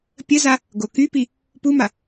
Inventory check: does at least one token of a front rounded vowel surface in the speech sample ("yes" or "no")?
yes